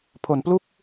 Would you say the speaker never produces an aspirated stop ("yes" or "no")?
no